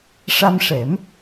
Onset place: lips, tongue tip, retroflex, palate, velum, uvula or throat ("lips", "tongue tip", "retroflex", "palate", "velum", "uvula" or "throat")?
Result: retroflex